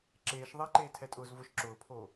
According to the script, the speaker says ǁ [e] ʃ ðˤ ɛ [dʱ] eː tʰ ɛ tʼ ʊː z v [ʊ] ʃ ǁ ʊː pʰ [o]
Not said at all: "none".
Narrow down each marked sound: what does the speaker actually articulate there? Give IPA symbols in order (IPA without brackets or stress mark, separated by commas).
eː, ǃ, ʊ, o